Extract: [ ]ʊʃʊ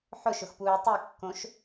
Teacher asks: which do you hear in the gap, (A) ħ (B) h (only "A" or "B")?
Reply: A